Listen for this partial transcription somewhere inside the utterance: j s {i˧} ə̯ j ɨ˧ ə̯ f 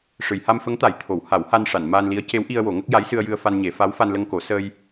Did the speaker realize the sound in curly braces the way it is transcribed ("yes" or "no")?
no